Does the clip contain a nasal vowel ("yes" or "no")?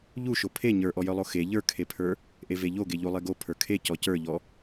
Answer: no